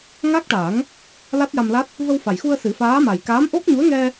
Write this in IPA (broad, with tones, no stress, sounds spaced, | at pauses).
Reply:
ŋ a˦˥ k̚ ʈ a˨˩˦ ŋ | l a˦˥ t̚ j a˧ m l a˦˥ t̚ | v ə˧ w f a˨˩ j x u˧ ə̯ s ɨ˨˩˦ f aː˧˥ m a˨˩ j k aː˧˥ m ʔ o˦˥ k̚ ɲ u˧˥ ə̯ ŋ ɛ˧